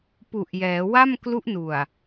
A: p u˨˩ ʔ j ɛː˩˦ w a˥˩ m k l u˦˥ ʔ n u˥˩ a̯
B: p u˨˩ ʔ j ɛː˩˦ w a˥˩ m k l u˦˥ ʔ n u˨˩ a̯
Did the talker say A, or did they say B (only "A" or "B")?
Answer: B